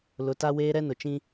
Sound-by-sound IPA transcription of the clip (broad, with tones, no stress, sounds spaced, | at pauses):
l ʊ˨˦ t a˦ w eː˦ ɾ ɛ˦ n ʊ˨ t͡ʃ ĩ˦